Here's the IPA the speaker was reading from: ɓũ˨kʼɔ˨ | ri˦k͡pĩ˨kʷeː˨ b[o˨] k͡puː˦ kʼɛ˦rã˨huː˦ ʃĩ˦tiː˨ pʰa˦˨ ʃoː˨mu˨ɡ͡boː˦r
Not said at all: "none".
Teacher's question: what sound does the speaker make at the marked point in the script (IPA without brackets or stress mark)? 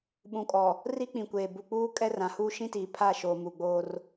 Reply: u˨